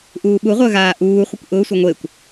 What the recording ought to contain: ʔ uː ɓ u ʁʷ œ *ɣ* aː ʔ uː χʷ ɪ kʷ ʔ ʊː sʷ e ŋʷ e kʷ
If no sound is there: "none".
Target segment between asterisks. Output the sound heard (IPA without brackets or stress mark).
ɣ